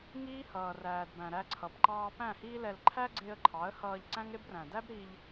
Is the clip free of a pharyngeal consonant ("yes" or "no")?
yes